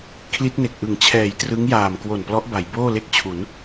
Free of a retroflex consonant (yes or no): yes